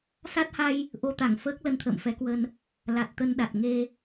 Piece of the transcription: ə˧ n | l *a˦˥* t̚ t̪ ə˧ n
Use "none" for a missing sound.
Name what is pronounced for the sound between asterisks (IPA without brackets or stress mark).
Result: a˨˩